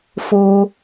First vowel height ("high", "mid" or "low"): mid